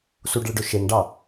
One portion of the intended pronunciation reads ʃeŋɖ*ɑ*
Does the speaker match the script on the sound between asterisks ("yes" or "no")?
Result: yes